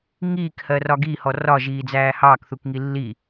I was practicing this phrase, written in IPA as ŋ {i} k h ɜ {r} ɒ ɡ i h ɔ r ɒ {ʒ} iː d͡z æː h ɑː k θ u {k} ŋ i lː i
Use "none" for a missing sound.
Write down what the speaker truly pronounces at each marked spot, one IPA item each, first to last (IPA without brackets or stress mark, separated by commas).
iː, r, ʒ, k